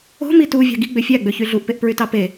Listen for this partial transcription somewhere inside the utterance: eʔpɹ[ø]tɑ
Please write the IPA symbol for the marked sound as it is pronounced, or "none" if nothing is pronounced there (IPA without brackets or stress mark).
y